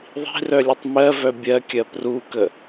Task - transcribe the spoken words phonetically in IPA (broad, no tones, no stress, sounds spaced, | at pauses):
ðˤ i̤ r œ lʲ ə tˤ m ɜ v œ bʲ ɜ kʲ ɜ p r u k ə